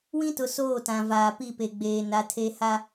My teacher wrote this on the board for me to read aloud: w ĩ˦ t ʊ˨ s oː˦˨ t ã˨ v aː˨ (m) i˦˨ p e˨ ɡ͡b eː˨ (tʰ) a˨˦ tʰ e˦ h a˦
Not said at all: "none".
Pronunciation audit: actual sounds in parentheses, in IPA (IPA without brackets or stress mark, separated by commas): p, n